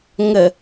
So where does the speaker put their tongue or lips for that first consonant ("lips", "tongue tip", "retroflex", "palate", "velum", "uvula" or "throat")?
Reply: velum